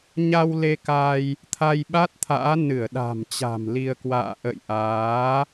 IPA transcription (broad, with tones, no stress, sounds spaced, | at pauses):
ɲ a˧ w l e˧ k a˧ j | t̪ʰ a˧ j ɓ a˦˥ t̚ t̪ʰ a̰ː˧˥ n ɨ˧˩ ə̯ ɗ a̤˨˩ m t͡ɕ a̤˨˩ m l i˧ ə̯ k w a̰ː˧˨ ʔ ə̰˧˨ j ʔ aː˨˦